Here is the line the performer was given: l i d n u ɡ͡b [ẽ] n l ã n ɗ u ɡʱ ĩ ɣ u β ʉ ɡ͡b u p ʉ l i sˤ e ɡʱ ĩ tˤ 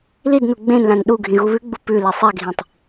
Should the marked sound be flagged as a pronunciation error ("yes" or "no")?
no